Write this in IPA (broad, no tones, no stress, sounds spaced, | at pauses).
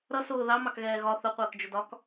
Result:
ɾ ʌ s ʊː ð ɑ m ɑ k ɣ ɛː ɣ ɒ θ ʊ qʷ əː k d͡ʒ ʊ d ɒ k